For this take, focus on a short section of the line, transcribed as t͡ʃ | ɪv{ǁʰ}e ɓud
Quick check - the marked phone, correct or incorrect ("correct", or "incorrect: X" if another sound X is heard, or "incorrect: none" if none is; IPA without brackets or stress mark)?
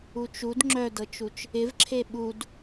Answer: correct